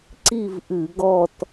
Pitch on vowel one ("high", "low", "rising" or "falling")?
falling